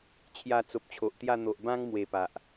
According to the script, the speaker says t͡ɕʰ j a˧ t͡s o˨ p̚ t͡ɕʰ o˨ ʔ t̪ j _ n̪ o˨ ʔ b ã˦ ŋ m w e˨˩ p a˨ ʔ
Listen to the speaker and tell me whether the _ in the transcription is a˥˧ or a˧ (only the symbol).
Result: a˥˧